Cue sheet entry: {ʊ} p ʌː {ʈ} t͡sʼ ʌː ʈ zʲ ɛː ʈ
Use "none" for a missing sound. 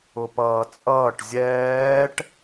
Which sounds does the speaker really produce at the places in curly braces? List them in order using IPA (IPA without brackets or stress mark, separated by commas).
ʊ, none